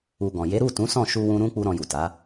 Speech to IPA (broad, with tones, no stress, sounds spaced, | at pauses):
u˧ ɡ ɔ̃˨ j e˨˦ ɾ u˦˨ t ũ˨˦ s ɔ̃˦˨ ʃ u˧ w ũ˧ ɾ ũ˦ k͡p u˦ ɾ ɔ̃˧ j u˨ t a˨˦